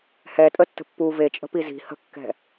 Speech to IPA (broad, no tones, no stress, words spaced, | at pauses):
hɛtʼətːə̤ pːu vet͡ʃʼə̤ pizi̤ hə̤kːɛ̤